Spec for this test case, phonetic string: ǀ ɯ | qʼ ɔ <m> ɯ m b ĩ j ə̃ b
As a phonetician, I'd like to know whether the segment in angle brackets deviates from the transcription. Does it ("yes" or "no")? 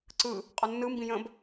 yes